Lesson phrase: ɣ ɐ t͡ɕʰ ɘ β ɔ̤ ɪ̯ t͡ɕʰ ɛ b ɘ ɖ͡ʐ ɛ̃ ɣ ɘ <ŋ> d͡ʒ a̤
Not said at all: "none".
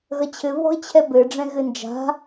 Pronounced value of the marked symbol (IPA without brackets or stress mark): n